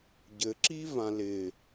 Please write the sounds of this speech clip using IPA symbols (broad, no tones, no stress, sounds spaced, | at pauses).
ɟ ɘ ǁ i v ã l ɪ